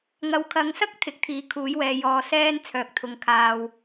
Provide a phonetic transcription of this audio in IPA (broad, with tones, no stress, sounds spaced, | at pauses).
ŋ ɐ˨ w kʰ ɐ˨˧ ŋ s ɐ˥ k̚ t̪ʰ ɪ˨˥ k̚ t̪ʰ iː˨˥ kʰ uː˨˥ j w ɛː˨ j ɔː˨˧ s ɛː˥ n t͡sʰ œː˨ k̚ t̪ʰ ʊ˨˧ ŋ kʰ aː˧ w